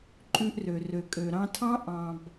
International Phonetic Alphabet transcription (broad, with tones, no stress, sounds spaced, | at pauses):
ǃʼ ʉ˧ ʔ r ø˨ r ø˨ kʼ ø˨ ɾ ɑ̃˧ tʰ ɑ̃˦ ʔ ɑ̃˨ b